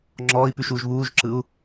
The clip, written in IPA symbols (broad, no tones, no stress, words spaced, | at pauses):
ŋ͡ǁɔːi̯pʉʃuːʒ βuːʒǁɯu̯